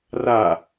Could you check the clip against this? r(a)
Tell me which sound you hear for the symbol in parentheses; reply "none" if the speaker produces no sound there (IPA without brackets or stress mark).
a